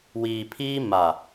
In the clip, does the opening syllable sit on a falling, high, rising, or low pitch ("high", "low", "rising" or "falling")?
low